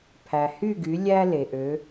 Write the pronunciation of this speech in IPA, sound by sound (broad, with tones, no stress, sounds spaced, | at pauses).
pʰ æ˩ h y˥˩ ɡ y˩˥ lʲ æ˥ l e˩ ʔ ø˩˥